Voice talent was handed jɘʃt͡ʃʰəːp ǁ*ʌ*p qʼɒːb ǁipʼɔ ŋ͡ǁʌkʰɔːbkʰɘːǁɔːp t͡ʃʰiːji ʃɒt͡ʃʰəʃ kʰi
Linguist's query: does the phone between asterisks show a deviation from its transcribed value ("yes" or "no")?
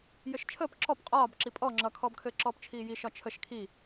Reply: yes